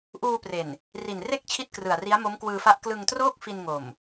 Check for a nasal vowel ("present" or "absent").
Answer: absent